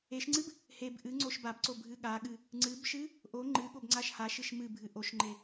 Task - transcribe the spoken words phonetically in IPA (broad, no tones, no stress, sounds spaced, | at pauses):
e ʃ ŋ͡ǀ ɨ b | h e b ʔ ɨ ŋ͡ǀ o ʃ b a b ǀ o bʱ ɨ ɠ a ɠ ɨ | ŋ͡ǀ ɨ b ʃ ɨ | ʔ o ŋ͡ǃ ɨ ɠ o b ŋ͡ǀ a ʃ h a ʃ ɨ ʃ m ɨ bʱ ɨ ʔ o ʃ ŋ͡ǃ e